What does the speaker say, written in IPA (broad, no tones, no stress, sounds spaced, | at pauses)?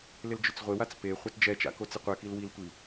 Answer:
l ɪ l d͡ʒ ʊ t͡s ʁʷ ɪ w a t͡s p e χʷ a t d͡ʒ ɛ t͡ʃ a̰ k o t͡s ɪ qʷ ɛ k i l w i l tʷ i